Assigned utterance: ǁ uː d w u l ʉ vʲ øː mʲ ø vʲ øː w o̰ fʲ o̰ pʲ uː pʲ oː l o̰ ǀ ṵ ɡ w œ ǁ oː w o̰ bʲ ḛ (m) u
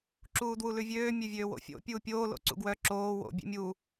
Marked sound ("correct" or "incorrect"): incorrect